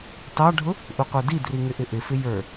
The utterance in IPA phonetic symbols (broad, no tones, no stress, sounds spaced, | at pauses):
t ɑ ɖʱ ʊ | ʔ u qʷ ə˞ d i d r i ŋ ɪ ʔ ɪ ʔ ɪ f ɪ j ə˞